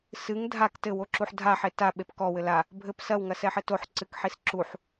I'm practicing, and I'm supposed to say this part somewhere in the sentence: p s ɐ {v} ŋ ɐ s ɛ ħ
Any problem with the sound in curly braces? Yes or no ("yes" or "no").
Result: yes